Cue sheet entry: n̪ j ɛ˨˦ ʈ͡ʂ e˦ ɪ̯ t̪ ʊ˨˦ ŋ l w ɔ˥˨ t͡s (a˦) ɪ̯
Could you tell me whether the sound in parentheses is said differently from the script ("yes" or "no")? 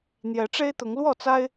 no